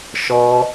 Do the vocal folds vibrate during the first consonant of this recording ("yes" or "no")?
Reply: no